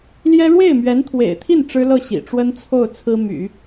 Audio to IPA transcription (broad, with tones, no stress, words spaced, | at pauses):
ljɛ˥ ɻwe˥˩ɪ̯mɥɛ˧˥nt̪ʰwḛ˨˩ɪ̯t̪ʰi˥˩n ʈ͡ʂɻ̩˥lɤ˥˩ ɕḭ˨˩ ʈ͡ʂwə˥nt͡sʰo˥˩ʊ̯ t͡sʰɹ̩˥ my̰˨˩˦